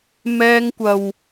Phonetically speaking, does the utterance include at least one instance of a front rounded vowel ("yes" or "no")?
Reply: no